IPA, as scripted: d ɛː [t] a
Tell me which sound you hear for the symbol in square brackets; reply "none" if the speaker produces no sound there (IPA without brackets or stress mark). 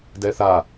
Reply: θ